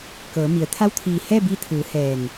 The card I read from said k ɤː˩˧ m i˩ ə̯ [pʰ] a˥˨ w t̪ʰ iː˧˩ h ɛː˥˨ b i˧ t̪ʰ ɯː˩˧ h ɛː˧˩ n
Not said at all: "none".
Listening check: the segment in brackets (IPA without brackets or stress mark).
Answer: t̪ʰ